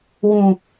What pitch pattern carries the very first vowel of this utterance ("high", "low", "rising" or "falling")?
low